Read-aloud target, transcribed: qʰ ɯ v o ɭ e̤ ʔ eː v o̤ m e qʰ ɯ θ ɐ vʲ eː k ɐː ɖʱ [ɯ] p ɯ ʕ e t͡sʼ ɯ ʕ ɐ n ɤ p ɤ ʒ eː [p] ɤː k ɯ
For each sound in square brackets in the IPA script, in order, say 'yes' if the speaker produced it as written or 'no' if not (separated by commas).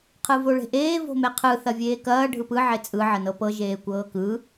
yes, no